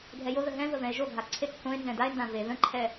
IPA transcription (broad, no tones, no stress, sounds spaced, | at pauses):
ɡʱ ɛ j o ð ə ɦ ɛ̃ v ə v ɛ̃ e̯ ʒ o ɡʱ a ǀʰ e k θ õ e̯ n z ɛ̃ d a e̯ n d ã v e ð ə̃ ǃʰ ɛ